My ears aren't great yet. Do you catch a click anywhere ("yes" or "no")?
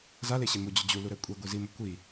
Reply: no